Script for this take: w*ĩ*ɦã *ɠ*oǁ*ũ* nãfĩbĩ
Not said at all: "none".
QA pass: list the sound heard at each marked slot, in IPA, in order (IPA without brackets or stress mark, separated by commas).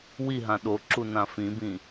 i, ɗ, u